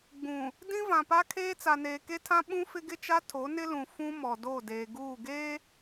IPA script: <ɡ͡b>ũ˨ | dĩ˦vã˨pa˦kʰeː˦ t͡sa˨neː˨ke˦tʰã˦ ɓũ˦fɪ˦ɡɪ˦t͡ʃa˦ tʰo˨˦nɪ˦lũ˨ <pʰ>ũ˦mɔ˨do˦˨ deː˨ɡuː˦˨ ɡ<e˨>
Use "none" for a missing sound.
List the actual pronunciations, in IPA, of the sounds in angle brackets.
ɡ͡b, f, e˦

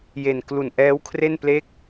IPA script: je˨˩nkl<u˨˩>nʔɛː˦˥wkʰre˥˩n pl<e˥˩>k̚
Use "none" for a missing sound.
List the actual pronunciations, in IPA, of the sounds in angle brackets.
u˨˩, e˦˥

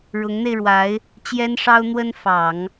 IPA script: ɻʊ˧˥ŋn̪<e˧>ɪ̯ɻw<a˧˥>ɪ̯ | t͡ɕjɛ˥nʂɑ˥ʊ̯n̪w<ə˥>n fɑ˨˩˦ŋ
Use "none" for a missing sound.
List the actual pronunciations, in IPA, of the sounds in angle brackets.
e˧, a˧˥, ə˥

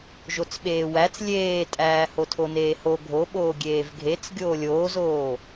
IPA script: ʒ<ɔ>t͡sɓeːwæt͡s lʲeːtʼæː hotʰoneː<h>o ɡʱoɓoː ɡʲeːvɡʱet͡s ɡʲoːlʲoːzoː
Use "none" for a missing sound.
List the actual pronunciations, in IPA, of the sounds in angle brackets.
o, h

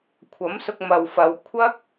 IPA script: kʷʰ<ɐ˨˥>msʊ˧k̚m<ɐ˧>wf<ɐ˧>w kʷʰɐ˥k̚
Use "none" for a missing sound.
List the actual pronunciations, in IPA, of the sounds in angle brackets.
ɐ˨˥, ɐ˨, ɐ˨˧

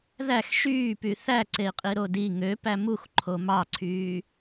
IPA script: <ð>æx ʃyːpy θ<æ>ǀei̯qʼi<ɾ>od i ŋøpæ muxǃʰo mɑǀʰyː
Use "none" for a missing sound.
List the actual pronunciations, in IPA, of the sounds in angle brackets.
ð, æ, ɾ

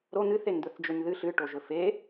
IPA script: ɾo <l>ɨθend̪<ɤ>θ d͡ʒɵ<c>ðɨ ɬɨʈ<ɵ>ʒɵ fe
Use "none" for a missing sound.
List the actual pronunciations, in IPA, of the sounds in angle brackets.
n̪, ɵ, ɲ, o

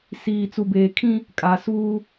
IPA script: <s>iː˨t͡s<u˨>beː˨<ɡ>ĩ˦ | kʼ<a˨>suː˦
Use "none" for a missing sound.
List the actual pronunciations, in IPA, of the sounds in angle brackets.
s, u˨, kʰ, a˨

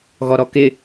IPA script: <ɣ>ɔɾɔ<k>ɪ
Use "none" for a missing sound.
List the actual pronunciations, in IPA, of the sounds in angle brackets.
ɣ, k

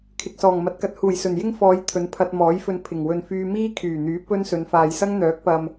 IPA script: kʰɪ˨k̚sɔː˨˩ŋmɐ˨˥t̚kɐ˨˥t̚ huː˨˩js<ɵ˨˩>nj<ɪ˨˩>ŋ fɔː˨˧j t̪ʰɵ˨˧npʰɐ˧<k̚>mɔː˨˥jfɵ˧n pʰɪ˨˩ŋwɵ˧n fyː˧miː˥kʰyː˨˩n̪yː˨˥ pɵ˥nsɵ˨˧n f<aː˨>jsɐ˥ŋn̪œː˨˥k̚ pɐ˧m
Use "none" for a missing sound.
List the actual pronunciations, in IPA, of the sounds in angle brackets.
ɵ˨˩, ɪ˥, t̚, aː˨

